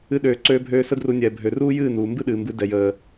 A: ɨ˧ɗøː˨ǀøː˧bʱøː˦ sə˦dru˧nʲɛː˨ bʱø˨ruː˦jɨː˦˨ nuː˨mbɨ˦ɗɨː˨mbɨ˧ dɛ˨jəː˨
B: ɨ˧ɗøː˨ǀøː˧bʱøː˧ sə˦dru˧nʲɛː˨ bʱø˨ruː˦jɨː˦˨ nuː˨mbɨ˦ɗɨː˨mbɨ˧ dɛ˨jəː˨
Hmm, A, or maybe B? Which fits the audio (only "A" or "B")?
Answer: B